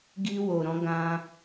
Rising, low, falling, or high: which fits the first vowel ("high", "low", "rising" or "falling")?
high